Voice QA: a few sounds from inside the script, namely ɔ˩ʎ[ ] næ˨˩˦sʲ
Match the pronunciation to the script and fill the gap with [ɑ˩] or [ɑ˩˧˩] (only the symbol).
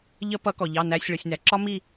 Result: ɑ˩˧˩